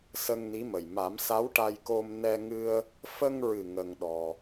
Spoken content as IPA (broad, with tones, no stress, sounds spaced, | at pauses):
s ə˧ ŋ n i˧˥ m ə˨˩ j m a˨˩˦ m s a˧˥ w ʈ a˧ j k o˧ m n ɛ˧ ŋ ɨ˧ ə̯ | f ə˧ ŋ ɹ ɨ˨˩ ŋ ə˧ ŋ ɗ ɔ˧